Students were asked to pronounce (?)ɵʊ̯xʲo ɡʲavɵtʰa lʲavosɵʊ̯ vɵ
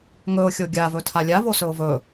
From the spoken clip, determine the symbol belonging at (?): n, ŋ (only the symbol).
ŋ